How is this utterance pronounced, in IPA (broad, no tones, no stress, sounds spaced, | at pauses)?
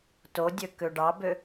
t o dʲ ø k ø ɖ ɑ b ø